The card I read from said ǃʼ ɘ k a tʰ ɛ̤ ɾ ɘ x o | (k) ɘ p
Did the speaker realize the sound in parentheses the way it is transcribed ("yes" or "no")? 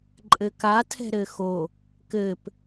yes